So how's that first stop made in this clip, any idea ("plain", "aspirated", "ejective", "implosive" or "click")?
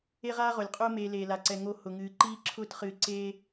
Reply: ejective